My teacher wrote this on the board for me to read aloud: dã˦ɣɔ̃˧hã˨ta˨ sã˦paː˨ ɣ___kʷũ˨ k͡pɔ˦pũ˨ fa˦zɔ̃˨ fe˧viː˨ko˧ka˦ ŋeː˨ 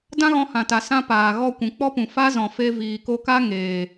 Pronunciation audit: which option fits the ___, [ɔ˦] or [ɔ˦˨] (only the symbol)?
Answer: ɔ˦˨